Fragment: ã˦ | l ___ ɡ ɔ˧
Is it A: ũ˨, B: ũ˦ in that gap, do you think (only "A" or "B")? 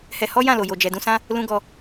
B